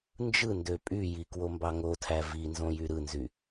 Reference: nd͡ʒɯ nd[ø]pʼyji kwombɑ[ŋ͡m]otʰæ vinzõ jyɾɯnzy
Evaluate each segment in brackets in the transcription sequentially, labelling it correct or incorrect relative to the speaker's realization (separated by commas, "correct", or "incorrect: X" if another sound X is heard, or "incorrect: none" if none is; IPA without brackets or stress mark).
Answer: correct, incorrect: ŋ